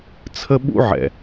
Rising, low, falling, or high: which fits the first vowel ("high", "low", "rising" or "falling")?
high